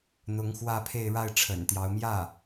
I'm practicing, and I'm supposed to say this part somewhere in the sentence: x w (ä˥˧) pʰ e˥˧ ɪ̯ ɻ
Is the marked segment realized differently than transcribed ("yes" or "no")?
no